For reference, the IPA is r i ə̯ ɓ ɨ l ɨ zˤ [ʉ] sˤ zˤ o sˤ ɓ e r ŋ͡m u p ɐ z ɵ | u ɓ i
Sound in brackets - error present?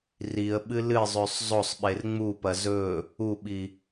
no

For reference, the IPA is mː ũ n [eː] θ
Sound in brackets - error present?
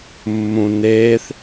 no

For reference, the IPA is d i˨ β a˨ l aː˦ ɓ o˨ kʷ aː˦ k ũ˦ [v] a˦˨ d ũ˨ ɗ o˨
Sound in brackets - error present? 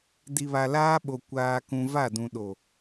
no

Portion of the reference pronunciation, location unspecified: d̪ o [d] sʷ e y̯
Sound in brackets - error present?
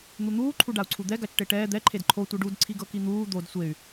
no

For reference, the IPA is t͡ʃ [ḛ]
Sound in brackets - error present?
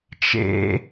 no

